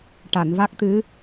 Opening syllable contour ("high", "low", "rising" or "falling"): low